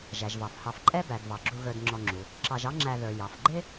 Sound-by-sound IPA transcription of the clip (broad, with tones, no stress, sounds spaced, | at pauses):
ʒ æ˩ ʒ v ɑ˩ f h ɑ˨ f ǃʼ ɛ˥ b æ˩ d v ɑ˩ ɡ͡ǁ u˨ ɣ ə˞˨ d ŋ͡ǁ ɔ˨ ŋ͡ǁ u˩ | ǁ ɑ˨ ʒ ɑ˦ ŋ͡ǁ æ˨ ð ə˞˩ j ɑ˩ f ɡ͡ǃ ɪ˥